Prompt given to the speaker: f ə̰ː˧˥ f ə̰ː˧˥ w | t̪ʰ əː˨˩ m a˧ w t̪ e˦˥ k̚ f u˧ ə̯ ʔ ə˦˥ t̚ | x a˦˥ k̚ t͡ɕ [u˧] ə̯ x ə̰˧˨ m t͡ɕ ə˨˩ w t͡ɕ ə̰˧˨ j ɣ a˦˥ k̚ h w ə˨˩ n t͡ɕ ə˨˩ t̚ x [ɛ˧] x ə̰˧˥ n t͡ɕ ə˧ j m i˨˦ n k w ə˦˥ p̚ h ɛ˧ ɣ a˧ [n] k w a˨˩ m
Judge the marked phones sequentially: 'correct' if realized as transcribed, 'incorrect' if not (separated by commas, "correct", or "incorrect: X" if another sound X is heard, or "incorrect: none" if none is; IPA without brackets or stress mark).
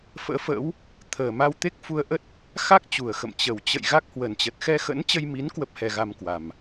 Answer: incorrect: u˨˩, correct, incorrect: m